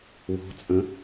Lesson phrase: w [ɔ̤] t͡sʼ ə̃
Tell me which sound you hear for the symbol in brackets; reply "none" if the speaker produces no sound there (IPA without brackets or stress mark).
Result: ɔ̤